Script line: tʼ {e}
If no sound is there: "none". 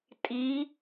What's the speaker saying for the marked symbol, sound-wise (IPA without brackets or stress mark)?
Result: i